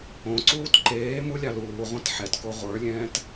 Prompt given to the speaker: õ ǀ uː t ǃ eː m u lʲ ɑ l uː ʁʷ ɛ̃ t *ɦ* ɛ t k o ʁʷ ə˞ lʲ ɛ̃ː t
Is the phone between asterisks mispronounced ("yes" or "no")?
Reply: yes